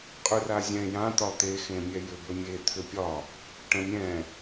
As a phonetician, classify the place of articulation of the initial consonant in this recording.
uvular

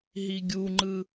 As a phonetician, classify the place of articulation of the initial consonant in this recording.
glottal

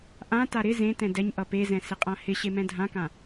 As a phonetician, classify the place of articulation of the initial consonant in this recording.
glottal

